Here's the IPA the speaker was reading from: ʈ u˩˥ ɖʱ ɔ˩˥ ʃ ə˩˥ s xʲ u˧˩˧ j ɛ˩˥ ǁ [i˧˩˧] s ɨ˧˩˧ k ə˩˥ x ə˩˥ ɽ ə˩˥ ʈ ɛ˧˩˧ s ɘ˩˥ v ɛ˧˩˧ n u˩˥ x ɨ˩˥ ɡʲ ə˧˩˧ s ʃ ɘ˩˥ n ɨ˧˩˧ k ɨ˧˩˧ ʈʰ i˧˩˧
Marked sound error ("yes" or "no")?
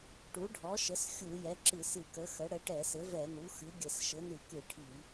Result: yes